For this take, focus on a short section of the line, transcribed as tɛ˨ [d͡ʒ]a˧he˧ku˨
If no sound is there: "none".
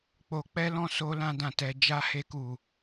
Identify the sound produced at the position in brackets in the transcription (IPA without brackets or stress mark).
d͡ʒ